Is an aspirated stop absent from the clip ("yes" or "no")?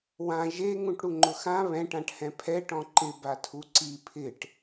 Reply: no